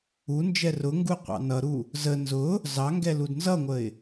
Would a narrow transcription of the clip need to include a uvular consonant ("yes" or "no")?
yes